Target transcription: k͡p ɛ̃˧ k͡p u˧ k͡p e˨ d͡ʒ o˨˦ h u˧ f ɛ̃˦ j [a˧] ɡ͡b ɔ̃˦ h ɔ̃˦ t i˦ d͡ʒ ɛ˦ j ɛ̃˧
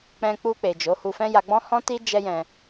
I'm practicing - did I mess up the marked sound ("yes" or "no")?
no